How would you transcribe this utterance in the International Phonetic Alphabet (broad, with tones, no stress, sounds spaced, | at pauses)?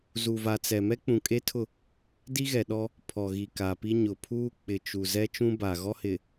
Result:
z u˨ v a˨ t͡s ɛ˨ m ɛ˦ k͡p ũ˨ kʼ e˦ tʰ ʊ˦˨ | d i˦ ɣ ɛ˨ ɗ ɔ˦ | pʰ ɔ˨ ɣ i˨ k a˨ p i˦ ɲ ʊ˨ pʰ uː˦ k͡p ɪ˨ t͡ʃ u˨ z ɛ˦ t͡ʃ ũ˦ b a˨ ɣ ɔ˦ h ɪ˨